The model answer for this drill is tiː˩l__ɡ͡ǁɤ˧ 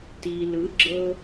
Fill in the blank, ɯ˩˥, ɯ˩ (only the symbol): ɯ˩˥